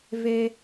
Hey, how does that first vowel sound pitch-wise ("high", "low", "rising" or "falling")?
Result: high